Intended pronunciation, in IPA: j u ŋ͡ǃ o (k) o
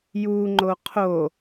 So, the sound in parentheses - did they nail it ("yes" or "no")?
no